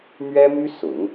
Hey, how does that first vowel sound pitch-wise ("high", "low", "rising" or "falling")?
high